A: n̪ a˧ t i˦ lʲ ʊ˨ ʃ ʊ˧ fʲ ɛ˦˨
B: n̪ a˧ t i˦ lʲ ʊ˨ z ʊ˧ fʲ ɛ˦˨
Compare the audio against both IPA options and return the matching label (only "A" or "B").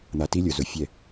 B